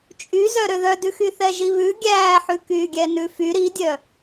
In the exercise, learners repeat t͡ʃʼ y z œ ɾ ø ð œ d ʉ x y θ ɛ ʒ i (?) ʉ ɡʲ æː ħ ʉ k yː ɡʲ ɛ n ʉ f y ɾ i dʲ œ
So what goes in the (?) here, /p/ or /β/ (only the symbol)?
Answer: β